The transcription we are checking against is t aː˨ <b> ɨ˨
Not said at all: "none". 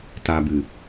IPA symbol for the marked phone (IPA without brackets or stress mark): b